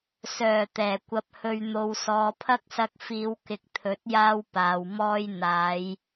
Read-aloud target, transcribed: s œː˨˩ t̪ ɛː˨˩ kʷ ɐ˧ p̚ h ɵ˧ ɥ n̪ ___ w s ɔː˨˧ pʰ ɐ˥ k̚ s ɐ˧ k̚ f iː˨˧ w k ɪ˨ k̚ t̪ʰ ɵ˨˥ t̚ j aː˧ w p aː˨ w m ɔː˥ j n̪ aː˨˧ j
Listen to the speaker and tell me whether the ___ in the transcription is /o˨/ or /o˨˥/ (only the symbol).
o˨